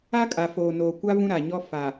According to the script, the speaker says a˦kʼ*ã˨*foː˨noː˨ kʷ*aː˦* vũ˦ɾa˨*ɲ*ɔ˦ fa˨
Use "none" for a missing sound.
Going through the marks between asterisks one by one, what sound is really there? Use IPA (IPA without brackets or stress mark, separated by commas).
a˨, a˦, ɲ